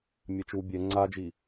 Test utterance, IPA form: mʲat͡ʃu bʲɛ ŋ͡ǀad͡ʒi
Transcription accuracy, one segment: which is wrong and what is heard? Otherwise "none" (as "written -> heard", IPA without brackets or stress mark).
none